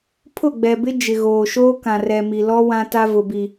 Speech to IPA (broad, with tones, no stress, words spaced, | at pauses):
pʰʊ˦˨ɡ͡bɛ˨bɪ˦ d͡ʒɪ˨ɣoː˨ ʃoː˦kã˨rɛ˨mi˨ lɔ˦ wã˦ta˦vʊ˨bi˨